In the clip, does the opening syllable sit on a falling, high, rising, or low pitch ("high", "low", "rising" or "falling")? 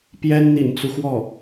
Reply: high